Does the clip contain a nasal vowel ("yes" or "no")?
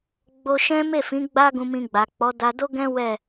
yes